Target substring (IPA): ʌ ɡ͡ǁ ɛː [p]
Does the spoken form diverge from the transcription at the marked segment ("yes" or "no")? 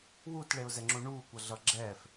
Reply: yes